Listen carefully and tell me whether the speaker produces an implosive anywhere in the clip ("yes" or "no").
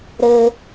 no